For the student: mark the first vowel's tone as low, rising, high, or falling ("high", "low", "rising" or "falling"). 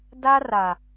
high